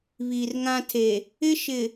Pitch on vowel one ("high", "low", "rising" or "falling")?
low